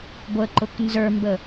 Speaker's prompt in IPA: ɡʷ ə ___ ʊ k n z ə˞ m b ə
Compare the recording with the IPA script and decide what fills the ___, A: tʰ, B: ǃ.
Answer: B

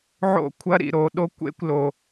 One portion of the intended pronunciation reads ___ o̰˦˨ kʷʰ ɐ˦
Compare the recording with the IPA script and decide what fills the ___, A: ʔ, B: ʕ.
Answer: B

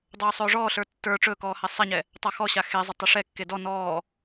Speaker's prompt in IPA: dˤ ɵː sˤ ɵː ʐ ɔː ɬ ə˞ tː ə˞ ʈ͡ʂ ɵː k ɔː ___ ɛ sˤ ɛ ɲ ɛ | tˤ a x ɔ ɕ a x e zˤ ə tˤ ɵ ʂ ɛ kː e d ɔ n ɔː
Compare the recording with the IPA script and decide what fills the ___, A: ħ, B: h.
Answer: B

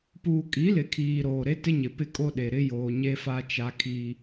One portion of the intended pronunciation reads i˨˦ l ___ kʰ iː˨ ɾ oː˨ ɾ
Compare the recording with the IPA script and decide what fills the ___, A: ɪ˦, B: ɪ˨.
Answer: B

